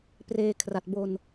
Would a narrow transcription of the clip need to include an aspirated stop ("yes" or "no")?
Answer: yes